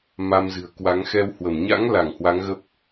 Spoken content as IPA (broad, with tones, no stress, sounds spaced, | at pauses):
m a˧ m z ɨ̤˨˩ ə̯ k w a˨˦ ŋ x ɛ˧ w h w ə˧˩ m ɲ a̰˧˥ ŋ l a˧˩ ŋ h w a˨˦ ŋ ɣ ə˦˥ p̚